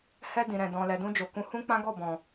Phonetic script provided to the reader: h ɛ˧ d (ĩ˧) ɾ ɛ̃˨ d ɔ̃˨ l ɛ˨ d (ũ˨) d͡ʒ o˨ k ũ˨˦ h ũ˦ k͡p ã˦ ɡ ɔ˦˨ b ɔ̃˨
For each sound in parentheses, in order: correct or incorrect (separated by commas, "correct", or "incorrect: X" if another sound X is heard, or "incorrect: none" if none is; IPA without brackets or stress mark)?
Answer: incorrect: ĩ˨, incorrect: ũ˧